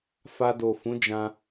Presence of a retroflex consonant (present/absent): absent